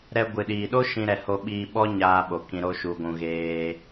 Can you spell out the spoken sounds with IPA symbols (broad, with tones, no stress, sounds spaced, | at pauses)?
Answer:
ɾ ɛ˧ ɡʷ ɨ˨ ɗ iː˨ ɗ o˦ ʃ ĩ˧ ɾ ɛ˨ h o˧ ɓ iː˧ ɓ ɔ˦ ɲ aː˧ ɓ o˨ k ĩ˧ ɾ o˦ ʃ u˧ ɡʷ ũ˧ ɣ eː˧